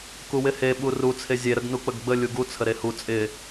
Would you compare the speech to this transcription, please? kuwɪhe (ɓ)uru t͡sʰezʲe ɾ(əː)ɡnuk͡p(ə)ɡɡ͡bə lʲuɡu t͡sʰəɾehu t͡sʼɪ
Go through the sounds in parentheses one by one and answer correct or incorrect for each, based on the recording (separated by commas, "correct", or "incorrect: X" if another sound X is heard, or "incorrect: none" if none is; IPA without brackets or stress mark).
correct, incorrect: ə, correct